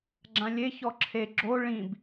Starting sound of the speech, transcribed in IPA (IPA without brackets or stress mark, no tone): ɡ͡ǁ